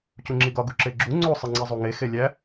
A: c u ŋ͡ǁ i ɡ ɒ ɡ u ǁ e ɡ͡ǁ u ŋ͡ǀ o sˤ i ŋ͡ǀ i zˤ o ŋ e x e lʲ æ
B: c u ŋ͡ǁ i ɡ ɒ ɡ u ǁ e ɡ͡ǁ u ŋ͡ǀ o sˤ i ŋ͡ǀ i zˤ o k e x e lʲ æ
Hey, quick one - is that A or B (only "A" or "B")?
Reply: A